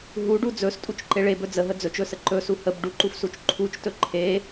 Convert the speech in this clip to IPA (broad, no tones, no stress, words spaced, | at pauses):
ɦuɖu d͡zɵstʼut͡ʃǃe ɭebɵ d͡zəɦə d͡zɵt͡ʃɵsə ǃɵsu həb ɖuǃufsut͡ʃ ǃʰut͡ʃtɵ ǃʰe